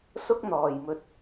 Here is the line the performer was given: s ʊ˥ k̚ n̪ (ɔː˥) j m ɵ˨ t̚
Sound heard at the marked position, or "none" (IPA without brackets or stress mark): ɔː˨˩